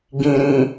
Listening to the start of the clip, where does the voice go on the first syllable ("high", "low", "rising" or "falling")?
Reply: low